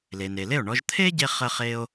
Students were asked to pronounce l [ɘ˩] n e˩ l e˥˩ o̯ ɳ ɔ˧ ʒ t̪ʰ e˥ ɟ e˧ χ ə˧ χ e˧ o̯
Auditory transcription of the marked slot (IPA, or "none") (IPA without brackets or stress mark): e˩